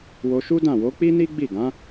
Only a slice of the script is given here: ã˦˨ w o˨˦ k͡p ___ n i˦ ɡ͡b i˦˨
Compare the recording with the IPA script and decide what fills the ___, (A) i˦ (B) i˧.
A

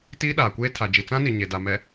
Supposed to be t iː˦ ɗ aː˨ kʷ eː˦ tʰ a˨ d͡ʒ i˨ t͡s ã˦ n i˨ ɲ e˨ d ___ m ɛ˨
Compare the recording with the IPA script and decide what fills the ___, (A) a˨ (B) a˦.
A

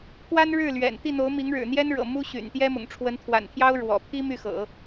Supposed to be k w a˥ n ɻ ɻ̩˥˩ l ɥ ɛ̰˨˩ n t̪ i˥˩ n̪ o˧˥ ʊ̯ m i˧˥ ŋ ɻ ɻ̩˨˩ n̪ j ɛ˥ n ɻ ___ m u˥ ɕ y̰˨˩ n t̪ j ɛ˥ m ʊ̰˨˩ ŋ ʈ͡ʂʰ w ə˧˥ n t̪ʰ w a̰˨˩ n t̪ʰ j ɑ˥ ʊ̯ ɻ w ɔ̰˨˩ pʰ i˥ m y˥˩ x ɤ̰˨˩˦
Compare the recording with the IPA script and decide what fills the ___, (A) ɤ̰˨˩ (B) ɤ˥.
A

